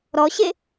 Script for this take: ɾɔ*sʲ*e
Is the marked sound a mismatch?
yes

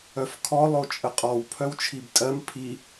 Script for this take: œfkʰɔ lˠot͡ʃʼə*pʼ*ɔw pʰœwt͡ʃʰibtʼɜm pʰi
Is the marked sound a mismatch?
yes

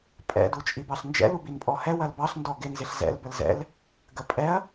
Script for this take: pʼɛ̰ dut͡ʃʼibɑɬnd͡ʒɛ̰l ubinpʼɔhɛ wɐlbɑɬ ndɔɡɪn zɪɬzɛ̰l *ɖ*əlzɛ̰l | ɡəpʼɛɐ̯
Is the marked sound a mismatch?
yes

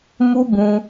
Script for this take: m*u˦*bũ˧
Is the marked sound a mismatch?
no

